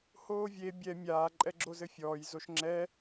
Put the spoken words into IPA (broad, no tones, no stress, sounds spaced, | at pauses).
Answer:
h oː vʲ e bʲ ɛ mʲ aː ǃʼ ɛ ɡ͡ǁ o z ɘ fʲ ɔː j z o ʃ ŋ͡ǁ ɛ